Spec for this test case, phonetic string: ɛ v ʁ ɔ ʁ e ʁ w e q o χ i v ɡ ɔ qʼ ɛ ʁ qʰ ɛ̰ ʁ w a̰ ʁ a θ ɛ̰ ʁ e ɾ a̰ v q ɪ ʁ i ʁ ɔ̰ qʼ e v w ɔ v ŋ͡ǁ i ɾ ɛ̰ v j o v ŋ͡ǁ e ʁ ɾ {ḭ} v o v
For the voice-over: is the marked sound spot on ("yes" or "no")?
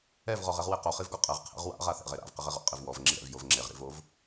yes